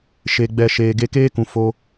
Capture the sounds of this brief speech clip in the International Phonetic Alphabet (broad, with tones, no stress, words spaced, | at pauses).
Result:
ʃe˨ɡ͡bɛ˨ ʃeː˨ɡe˧keː˦kũ˨ fo˧